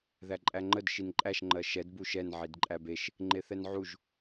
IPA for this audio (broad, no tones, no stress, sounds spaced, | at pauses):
ð æ ǃʼ æ ŋ͡ǃ ə d ʃ i n ǃʼ æ ʃ ŋ͡ǃ ɜ ʃ ɛ d b u ʃ ɛ n ʕ i d ǃʼ æ b e ʃ | ŋ͡ǃ e θ ɛ n ʕ u ʒ